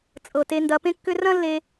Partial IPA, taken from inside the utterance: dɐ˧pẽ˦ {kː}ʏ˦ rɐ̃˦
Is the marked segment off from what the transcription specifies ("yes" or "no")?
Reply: no